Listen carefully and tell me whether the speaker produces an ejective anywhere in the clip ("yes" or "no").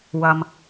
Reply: no